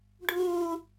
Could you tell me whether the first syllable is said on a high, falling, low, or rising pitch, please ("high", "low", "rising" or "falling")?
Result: low